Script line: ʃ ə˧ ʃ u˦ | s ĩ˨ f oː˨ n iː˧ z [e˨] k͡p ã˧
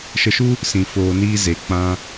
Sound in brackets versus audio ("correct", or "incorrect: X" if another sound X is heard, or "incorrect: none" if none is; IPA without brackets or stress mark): correct